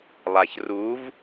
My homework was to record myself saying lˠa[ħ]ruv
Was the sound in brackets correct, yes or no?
no